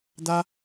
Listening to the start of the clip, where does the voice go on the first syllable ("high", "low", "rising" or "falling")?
high